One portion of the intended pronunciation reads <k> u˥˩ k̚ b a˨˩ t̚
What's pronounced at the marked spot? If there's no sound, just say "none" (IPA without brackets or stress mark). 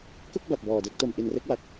k